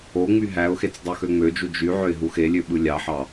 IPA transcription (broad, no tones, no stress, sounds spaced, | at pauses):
o ŋ͡m y ɦ æ ʊ̯ x e t͡s dˤ u x ø ŋ͡m ø d͡ʒ u d͡ʒ y ʕ ø ɪ̯ ɦ u x e lʲ ø ɓ ɯ lʲ ɑ ħ ɑ